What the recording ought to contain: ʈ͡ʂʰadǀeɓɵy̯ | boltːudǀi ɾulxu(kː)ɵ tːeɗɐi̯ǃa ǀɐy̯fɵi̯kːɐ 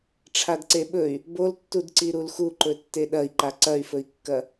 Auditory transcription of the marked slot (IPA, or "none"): ǃ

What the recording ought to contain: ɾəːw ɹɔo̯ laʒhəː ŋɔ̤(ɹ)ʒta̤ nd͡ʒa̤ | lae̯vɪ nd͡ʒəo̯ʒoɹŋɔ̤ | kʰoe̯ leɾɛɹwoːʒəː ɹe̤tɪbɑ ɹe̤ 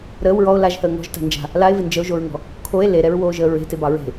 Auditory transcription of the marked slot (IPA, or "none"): none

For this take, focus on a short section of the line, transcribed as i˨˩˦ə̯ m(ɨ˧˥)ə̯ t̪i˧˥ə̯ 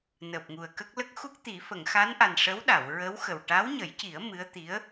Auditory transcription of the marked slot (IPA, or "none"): ɨ˧˥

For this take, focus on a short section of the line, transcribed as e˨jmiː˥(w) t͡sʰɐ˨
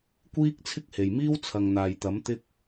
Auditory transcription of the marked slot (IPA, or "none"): w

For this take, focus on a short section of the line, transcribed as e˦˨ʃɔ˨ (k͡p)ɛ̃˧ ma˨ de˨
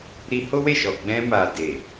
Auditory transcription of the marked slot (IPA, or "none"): ɡ͡b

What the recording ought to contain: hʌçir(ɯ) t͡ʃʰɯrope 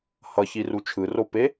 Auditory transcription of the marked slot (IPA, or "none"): u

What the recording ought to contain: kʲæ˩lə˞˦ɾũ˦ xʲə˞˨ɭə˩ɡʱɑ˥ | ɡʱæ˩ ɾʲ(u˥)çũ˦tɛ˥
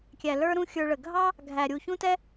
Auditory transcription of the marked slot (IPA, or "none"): u˩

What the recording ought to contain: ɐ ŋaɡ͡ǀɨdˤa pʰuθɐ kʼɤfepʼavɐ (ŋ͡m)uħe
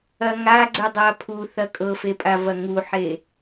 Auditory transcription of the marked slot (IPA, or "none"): ŋ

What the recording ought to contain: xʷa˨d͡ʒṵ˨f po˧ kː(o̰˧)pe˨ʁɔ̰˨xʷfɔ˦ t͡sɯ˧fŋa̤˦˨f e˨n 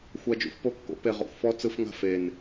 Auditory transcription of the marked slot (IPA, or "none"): o̰˧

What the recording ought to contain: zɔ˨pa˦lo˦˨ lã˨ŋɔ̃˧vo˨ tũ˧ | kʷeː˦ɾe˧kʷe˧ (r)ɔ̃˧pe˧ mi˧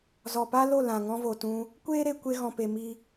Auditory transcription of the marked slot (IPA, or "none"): ɣ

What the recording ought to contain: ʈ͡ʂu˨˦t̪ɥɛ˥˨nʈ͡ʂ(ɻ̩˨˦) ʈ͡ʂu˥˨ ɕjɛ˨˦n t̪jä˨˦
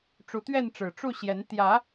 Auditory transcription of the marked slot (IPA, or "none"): ɻ̩˨˩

